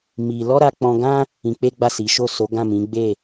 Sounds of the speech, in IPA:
mi˧ lɔ˦ɾa˧k͡pɔ̃˧ɡã˦ | ĩ˧k͡pe˦ɡ͡ba˦˨ si˨˦ ʃo˦˨so˨˦ɡã˦˨ mĩ˨˦ɡ͡be˦˨

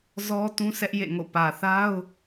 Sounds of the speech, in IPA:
zɔ˦ tũ˦sʰɛ˦ʔjḛ˦˨ŋo̰˦˨ pä˨θa˦ʊ̯

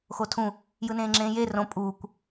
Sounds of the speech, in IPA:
xotʰũ | jɯnẽːŋ͡ǁẽːje rõ pʼuːkʷ

